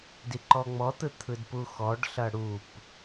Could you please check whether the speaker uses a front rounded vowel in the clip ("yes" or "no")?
no